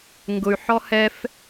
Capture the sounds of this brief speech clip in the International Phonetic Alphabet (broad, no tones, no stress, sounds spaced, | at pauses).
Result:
ŋ ɡ ʊ y̯ ħ ɔ h ɛ f